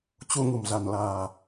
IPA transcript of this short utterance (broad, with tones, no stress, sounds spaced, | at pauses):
t͡ɕ u˧ ŋ ṳ˨˩ m z a̤˨˩ n l a̤ː˨˩